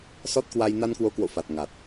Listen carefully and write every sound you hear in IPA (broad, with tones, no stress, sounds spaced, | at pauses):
s ɔ˦˥ t̚ k w a˧ j n a˧ n k w o˨˦ k w o̰˧˨ f a˨˩ t̚ ŋ a˨˩ t̚